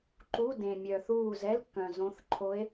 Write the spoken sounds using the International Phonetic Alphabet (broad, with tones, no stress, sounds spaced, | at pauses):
ǃ u˧˥˧ d ẽ˨ mʲ œ˨ θ uː˦˨ z ɛ˧˥˧ l kː œ̃˨ z õ˧˥ θ ǃʰ o˧˥ e̯